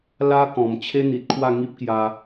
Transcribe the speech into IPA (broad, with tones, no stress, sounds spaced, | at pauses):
l a˦ k ɔ̃˨˩ m t͡ɕʰ e˦ n̪ i˨ t̚ kʰ w a˥˧ ŋ i˦ p̚ k j a˧